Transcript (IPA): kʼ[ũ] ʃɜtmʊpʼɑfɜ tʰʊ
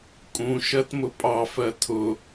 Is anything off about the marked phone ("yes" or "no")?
no